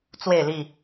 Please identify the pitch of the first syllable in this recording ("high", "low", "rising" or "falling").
falling